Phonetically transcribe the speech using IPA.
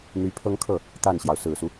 n̪ y˧˥ pʰ ɤ˥ ŋ kʰ ɤ˥˩ | t̪ a˥˩ n ɕ j ɑ˩ ʊ̯ s ɹ̩˨˩ s u˦

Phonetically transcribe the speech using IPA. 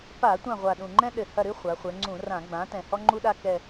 p a˧˩˧ tʷ ã˦˨ ʁʷ a˨˩ ɗ ũ˨˩ ŋ͡ǃ ɛ̃˥ ɗ ɘ˨˩ h ɐ˦˨ ɾ ɨ˥ χʷ a˩˧ χʷ ɛ˩˧ ŋ͡ǀ ũ˧˩˧ r ã˧˩˧ ɡ͡b ã˩˥ t ɛ̃˨˩ h ɔ˥ ŋ͡ǃ u˥ ɗ a˥ k ɛ˨˩

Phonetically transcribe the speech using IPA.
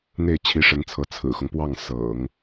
n̪ e˥˩ ɪ̯ t͡ɕʰ i˧˥ ʂ ə˧˥ n t͡sʰ ɤ˧˥ t͡sʰ ɹ̩˨˩ x ʊ˦ ŋ p w ɑ˥˩ ŋ s ɤ̰˨˩˦ ŋ

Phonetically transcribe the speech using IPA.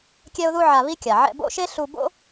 kʲ ɛ˥ ʊ̯ ð u˥ ʕ a˧ β i˥ kʲ a˩ ʕ ɛ̰˧ b o̰˥ ʃ e˥ ɬ u˧ b o̰˥

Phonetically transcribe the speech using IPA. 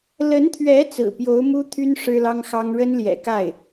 l ə˧˥ n t̪ʰ ɥ ɛ˧˥ t͡s ɹ̩˨˩ p j o˧˥ ʊ̯ m u˥ t̪ʰ y˥ n ʂ ɻ̩˥ l ɑ˥ ŋ x ɑ˥ ŋ ɻ ə˥ n l j ɛ̰˨˩ k a˥˩ ɪ̯

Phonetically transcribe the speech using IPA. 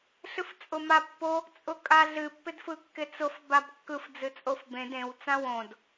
ɬ ɨ f t͡sʼ ʊ m a pː o | t͡sʼ ʊ kʼ a ɮ ɨ pː ɪ d f ɯ kː ɪ t͡s ʊ f b a b kː ɯ f d͡z ɨ t͡sʼ o f b ẽ d ẽ w t͡s ã w õ d

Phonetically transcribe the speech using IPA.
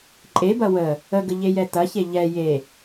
ǃʼ e b ɐ w ə | ə ɡ ə ʎ e j ɛ t ɐ ç e ʎ ɛ j e

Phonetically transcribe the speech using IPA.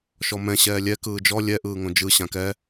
ʃ ɔ m ɛ̃ ɕ ɛː lʲ ɛ k ɯː d͡ʒ ɔ lʲ ɛ ʔ ɯː ŋ õ d͡ʒ ɯ ɕ ã k ɛ

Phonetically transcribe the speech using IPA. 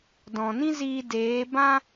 d ɔ̃˨ n ĩ˦ z iː˧ d eː˨˦ b ã˦

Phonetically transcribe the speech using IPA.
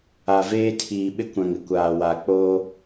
a˨ v eː˦ tʰ iː˨ ɓ ɪ˦ kʷ ã˨ ŋ ɪ˦˨ kʷ aː˨ w a˨ k͡p oː˦

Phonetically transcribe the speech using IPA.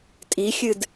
tʼ i xʲ ɨ d

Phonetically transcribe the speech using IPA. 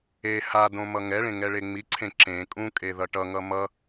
e h a d õ m ʌ ŋ ɛ ɭ ẽ ŋ ɛ ɭ e ŋ͡m i ǀʰ ẽ ǁ ẽ kʼ ũ kʼ e ð ʌ ʈ ʌ ŋ ʌ m ʌ

